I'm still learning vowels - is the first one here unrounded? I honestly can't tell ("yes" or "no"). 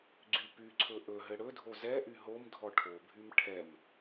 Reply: no